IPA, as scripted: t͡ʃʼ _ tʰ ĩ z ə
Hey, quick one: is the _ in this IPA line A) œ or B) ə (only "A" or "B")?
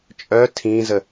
A